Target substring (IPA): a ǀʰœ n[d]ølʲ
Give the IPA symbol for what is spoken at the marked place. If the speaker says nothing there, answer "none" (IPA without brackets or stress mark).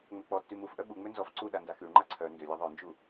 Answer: d